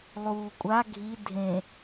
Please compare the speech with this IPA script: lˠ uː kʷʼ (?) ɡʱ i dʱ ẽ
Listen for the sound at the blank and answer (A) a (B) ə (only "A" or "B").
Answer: A